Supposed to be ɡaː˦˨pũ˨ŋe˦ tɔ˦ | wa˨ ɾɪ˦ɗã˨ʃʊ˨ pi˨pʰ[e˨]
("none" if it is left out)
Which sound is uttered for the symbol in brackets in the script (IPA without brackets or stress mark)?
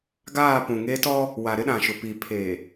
eː˨